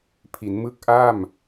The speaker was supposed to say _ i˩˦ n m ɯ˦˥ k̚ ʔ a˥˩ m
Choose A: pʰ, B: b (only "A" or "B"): A